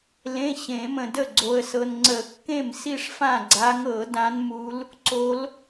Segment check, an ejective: absent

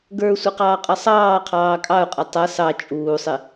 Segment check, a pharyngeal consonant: absent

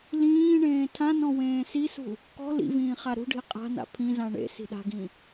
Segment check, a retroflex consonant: present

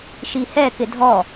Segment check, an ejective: absent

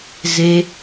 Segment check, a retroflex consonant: absent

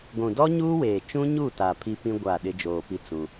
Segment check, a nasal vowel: present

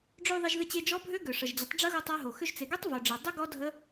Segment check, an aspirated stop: absent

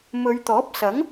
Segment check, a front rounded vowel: absent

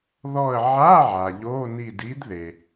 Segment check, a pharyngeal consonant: present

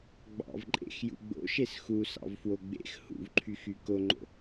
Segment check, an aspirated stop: present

